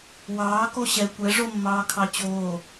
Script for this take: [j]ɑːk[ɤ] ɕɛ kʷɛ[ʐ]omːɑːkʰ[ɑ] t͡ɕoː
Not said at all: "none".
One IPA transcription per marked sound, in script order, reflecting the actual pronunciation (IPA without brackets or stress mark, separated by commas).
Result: w, o, ʐ, ɑ